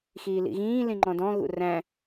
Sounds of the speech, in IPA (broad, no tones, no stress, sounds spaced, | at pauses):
x iː l ḭ ɣ ĩː l ĩ ŋ͡ǃ ɔ̃ d ɔ̃ ɣ ṵ r æ̃